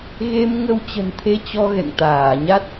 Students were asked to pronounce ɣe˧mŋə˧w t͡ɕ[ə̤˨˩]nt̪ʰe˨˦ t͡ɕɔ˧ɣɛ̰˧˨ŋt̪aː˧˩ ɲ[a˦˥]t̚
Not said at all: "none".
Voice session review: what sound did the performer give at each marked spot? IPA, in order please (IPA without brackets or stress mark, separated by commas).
ə̤˨˩, a˦˥